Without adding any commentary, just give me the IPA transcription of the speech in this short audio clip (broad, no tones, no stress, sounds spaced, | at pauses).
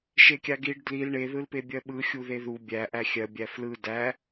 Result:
ʃ e kʲ a ɡ i ɖ d l i l ɳ e ð ɯ l p e bʲ ɜ ɓ ɯ xʲ u ð e ð u bʲ æ ʔ æ xʲ ɜ bʲ æ f l ɯ d æ